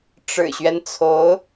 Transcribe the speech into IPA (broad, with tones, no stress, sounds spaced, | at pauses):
ʈ͡ʂ ɻ̩˨˩ ɕ ɥ ɛ˦ n t͡sʰ o˧˥ ʊ̯